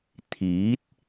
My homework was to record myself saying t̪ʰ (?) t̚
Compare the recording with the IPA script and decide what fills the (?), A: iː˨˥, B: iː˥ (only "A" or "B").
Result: A